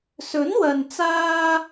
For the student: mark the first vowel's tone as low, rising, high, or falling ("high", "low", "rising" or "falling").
rising